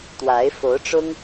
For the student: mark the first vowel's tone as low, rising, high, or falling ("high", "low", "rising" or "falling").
rising